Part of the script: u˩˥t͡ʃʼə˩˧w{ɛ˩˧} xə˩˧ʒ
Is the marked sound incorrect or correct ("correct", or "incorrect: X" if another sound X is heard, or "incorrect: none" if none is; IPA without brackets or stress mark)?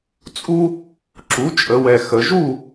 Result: incorrect: ɛ˨˩